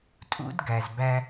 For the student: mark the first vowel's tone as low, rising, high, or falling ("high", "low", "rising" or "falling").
high